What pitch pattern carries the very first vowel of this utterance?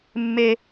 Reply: high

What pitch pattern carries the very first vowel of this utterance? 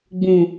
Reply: low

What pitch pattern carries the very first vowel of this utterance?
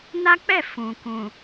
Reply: high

